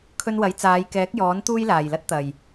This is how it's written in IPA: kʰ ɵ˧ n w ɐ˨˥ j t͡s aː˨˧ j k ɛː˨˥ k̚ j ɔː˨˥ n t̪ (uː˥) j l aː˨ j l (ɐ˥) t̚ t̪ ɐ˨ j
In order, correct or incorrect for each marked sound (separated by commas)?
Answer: correct, correct